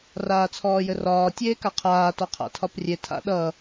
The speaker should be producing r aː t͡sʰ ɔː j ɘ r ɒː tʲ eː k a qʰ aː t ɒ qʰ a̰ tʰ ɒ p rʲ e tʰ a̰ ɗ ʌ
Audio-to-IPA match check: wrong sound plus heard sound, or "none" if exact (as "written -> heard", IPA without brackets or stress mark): none